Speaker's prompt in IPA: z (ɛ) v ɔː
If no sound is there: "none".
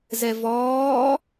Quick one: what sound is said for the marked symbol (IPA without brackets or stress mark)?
ɛ